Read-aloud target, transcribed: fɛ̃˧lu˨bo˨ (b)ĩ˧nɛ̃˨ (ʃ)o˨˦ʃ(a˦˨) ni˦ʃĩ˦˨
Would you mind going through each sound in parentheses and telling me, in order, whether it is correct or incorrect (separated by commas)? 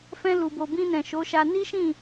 correct, correct, incorrect